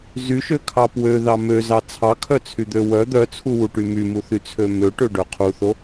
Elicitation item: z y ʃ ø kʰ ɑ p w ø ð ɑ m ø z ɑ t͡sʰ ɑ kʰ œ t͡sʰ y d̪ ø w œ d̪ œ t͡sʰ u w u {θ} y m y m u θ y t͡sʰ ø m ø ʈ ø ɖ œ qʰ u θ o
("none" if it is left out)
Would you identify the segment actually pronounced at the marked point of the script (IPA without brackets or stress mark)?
ʈ